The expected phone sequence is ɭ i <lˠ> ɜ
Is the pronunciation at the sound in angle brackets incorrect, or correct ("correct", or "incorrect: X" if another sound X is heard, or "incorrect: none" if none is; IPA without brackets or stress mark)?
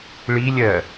incorrect: lʲ